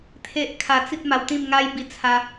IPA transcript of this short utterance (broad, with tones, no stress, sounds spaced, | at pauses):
t̪ʰ e˦ ʔ kʰ a˧ t͡s i˦ t̚ m a˧ w t̪ ĩ˥˧ m ŋ a˦ j b i˧ t͡sʰ a˧